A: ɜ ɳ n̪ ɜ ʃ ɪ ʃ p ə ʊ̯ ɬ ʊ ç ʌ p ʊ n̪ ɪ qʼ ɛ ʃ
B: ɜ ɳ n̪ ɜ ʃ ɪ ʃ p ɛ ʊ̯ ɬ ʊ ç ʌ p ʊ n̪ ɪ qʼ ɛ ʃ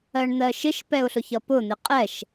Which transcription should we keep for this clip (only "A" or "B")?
B